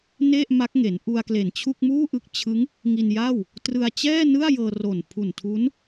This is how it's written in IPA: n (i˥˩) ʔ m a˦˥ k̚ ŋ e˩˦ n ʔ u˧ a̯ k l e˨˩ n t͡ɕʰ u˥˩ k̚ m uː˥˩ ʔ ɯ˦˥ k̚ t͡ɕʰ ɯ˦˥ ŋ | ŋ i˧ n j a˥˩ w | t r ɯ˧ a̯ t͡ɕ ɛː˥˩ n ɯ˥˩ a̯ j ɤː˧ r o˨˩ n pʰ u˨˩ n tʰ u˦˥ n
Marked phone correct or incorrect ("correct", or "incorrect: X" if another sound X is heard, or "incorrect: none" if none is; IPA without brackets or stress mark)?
incorrect: e˥˩